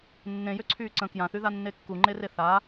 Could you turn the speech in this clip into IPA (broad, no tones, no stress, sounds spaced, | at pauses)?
nː ẽ j ø ǀʰ yː ǀ ə̃ k j ã θ y ð a nː e kː u ŋ͡ǃ e r e θ a